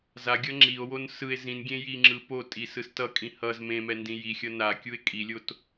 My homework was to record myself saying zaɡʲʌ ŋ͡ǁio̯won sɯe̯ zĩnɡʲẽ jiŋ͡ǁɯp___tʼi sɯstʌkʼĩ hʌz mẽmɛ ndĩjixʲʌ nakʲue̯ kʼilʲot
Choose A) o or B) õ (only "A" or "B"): A